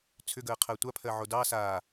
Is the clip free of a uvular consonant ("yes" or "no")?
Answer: no